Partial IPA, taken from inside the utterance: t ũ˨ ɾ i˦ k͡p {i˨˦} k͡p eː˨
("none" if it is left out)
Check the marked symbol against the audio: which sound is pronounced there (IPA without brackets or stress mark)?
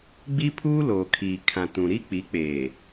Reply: i˨˦